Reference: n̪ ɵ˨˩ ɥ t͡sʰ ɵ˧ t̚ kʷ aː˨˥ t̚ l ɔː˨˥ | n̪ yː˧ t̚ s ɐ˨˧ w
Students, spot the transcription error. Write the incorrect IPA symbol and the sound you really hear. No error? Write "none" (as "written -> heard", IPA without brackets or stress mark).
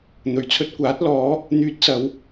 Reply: none